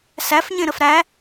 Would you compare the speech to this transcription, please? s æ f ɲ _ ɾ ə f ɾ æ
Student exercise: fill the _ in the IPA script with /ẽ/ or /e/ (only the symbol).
ẽ